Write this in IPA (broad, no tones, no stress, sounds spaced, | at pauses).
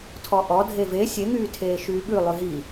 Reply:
tʰ ɔ ʔ ɔ dʱ e v e sʲ e ŋ yː tʰ eː ʃ yː ɓ ʉ lˠ ʉ ɦ i